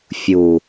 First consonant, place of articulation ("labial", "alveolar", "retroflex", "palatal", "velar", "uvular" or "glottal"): labial